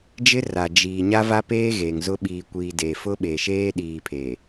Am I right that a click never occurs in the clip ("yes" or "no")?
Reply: yes